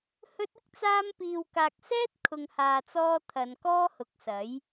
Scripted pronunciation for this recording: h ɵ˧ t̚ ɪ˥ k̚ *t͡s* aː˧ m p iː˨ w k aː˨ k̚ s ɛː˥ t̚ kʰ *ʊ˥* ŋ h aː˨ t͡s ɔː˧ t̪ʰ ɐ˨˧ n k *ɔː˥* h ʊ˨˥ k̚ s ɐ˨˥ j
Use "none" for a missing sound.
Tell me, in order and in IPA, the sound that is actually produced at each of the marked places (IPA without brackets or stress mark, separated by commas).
t͡s, ʊ˨, ɔː˥